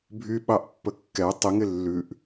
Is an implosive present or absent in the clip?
present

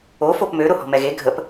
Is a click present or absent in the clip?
absent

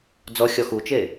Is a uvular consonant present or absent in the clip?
absent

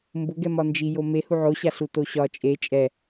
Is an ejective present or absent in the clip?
present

